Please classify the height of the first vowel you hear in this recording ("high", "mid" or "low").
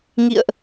high